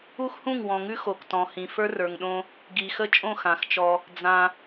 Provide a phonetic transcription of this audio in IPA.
u˦ x h ũ˦˨ ŋ w ɔ̃˨ ŋ ʉ˦ x o˨ k t ɔ̃˨ h ĩ˨ f ə˞˦ r ə˞˨ ŋ ɗ õ˦ | ɡ i˨ x ə˦ t͡ʃʼ õ˦˨ x ã˨ x t͡ʃ ɔ˦ | d͡z ã˦

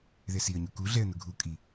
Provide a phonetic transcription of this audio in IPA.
ð ɛ s i ə̯ ɲ u k u ɮ ɛ ə̯ n ʊ ɡʱ u kʼ i

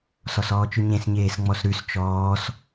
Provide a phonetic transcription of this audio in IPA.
s ɔ s ɔː t͡ʃ ʉ ɲ ẽ s ɲ eː s ŋ͡m ɔ s ɾ ʉ s t͡ʃ ɔː s

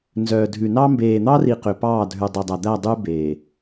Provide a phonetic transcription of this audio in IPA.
n z œː˨ dʱ ʉ˨ n ɑ˦ m b eː˨ n̪ ɑ˦ r i˨ q ø˨ p ɑː˦˨ dʱ ʉ˨ dˤ e˨ dˤ æ˨ d̪ æ˦˨ dˤ y˦ b eː˨

